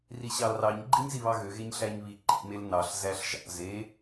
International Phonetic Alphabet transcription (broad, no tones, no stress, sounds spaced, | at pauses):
r i ɕ ɑ l r ɑ ɲ ɡ͡ǃ i ɲ z i β ɑ ɣ ø ɣ e ɲ ɬ æ ɲ β i ǃ ḭ m e l n ɑ ɬ z æ ɬ ʒ ɑ̰ z e